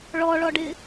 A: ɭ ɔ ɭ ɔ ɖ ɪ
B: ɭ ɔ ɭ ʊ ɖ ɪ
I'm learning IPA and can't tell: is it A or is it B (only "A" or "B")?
A